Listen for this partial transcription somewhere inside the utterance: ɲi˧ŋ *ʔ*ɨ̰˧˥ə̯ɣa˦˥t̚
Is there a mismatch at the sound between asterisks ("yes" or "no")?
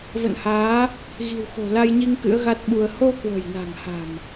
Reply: yes